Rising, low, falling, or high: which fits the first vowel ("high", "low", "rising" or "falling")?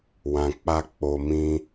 low